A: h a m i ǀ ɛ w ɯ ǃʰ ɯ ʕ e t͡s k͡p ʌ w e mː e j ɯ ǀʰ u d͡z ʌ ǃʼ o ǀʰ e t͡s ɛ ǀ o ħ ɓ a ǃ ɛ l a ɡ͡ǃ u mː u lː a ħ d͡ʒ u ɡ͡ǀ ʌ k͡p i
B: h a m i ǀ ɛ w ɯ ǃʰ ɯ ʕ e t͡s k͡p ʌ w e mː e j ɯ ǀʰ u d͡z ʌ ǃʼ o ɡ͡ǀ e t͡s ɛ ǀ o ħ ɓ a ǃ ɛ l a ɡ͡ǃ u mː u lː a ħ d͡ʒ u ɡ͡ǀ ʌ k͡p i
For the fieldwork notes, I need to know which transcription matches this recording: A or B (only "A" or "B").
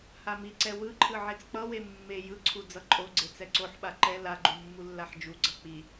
B